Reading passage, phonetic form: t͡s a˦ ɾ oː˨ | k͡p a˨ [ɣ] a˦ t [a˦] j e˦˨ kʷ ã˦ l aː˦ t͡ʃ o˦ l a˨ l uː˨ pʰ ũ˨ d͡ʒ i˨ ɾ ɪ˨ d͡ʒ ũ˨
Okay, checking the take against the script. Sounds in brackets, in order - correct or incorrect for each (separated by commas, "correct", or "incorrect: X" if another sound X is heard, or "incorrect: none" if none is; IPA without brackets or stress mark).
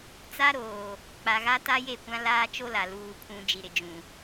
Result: correct, correct